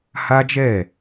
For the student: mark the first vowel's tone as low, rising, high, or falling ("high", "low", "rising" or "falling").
high